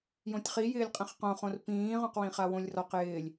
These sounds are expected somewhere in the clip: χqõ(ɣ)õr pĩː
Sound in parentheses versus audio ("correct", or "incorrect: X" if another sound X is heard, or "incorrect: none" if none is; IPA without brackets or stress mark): incorrect: χ